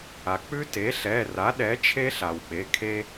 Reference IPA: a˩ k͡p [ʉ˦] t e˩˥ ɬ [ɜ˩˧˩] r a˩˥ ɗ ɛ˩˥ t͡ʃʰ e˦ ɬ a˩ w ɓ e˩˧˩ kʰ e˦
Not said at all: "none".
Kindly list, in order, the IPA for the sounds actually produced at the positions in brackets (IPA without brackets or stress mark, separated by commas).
ʉ˦, ɛ˩˧˩